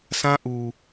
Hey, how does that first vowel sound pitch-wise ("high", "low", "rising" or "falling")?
high